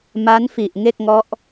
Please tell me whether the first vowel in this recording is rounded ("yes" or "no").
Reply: no